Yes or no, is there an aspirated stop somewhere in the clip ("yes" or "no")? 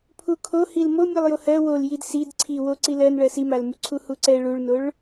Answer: yes